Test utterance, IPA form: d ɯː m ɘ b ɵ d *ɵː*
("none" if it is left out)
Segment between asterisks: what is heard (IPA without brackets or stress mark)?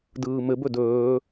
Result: ɵː